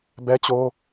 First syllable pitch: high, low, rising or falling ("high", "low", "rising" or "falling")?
high